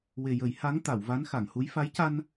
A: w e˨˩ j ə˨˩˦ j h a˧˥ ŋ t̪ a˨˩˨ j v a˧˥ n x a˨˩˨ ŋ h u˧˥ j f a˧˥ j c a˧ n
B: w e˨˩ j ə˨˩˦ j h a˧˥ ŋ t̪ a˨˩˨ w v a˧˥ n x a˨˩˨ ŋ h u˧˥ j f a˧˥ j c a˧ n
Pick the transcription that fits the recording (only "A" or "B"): B